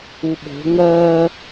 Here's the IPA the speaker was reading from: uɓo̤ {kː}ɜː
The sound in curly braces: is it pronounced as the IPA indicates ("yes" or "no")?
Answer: no